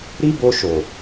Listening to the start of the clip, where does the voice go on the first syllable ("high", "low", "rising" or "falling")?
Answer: high